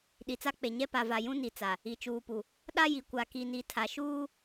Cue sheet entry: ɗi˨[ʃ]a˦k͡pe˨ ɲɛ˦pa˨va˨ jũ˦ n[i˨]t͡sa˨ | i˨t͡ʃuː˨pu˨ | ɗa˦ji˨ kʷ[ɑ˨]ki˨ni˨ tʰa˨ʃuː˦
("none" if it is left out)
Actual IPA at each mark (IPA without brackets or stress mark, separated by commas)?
t͡s, i˨, a˨